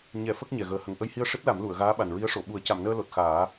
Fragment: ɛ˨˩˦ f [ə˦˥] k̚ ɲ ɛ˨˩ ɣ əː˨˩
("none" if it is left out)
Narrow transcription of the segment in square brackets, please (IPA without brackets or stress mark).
ə˦˥